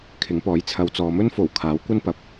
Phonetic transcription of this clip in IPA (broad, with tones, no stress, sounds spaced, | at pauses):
kʰ ɪ˨˥ ŋ p ɔː˨˥ j t͡sʰ ɐ˨ w t͡s ɔː˨ m ɵ˥ n f o˨˩ w kʰ aː˨˥ w kʷ ɐ˥ n p ɐ˨˥ p̚